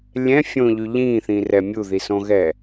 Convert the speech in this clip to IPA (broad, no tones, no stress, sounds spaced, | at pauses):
lʲ ɛ̃ fʲ õ ʎ y ʎ ĩ θ ĩ r ɛ mʲ u ð i s õ ɣ ɛ